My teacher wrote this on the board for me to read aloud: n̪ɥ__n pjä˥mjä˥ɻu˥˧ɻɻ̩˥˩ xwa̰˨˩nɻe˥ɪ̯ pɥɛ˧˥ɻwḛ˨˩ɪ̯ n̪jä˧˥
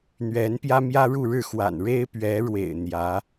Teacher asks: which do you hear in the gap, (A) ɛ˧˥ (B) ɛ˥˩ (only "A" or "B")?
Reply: A